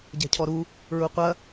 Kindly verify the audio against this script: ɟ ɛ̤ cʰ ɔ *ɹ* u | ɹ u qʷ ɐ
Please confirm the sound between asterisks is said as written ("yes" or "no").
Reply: no